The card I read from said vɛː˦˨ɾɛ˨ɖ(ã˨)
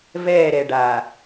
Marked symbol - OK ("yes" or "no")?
no